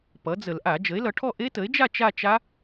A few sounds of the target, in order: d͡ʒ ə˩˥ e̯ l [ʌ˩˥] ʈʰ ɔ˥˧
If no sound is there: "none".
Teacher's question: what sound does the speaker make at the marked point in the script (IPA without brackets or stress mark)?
ʌ˩˥